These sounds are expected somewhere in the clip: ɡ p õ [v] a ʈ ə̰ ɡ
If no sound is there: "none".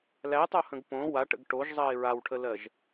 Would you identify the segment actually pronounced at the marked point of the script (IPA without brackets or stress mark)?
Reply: w